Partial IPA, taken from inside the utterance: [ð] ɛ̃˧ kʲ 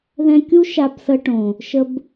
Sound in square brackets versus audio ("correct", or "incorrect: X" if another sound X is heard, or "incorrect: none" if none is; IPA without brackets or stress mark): correct